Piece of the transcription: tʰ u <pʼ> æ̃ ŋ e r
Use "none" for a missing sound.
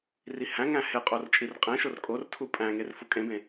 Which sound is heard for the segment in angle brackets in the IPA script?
pʼ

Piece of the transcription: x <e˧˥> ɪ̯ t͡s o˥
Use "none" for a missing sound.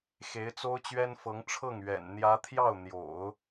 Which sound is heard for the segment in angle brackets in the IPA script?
e˧˥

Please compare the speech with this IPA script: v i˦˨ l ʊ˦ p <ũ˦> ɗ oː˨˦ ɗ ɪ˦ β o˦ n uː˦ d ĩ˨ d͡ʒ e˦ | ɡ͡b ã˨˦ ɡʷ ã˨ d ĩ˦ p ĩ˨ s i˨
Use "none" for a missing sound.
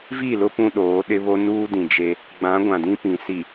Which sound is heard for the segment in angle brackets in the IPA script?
ũ˦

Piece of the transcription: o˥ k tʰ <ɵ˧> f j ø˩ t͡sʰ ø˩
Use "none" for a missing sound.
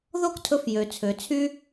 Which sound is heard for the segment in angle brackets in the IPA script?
ɵ˧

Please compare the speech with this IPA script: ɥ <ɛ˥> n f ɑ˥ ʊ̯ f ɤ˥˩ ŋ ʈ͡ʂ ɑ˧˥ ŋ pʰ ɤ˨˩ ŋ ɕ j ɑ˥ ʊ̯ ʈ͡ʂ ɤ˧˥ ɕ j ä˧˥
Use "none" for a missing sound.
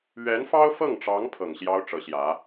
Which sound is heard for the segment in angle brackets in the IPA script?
ɛ˧˥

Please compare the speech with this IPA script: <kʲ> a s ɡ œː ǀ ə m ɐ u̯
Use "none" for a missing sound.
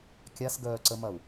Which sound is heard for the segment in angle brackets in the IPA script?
kʲ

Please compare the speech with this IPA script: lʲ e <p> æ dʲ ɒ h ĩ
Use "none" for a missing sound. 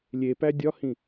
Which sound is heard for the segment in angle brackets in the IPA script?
p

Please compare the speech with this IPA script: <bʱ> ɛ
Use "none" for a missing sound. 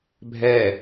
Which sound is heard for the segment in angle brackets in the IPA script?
bʱ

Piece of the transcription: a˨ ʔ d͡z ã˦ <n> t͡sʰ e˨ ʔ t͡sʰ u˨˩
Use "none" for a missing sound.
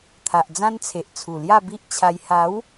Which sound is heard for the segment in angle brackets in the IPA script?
n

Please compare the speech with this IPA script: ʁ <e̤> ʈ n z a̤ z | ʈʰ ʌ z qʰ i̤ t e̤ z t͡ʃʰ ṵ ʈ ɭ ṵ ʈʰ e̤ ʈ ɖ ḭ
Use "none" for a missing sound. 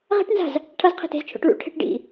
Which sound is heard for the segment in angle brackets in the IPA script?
e̤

